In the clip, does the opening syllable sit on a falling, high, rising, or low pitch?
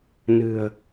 low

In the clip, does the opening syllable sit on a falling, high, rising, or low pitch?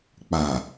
low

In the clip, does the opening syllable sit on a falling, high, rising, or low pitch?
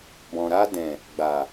low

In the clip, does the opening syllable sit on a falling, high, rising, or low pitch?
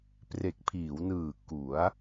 low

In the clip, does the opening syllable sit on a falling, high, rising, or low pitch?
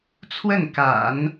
falling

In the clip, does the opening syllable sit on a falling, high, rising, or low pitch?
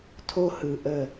high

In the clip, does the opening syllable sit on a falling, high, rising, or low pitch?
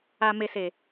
low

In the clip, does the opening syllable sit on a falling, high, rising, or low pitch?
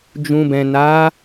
low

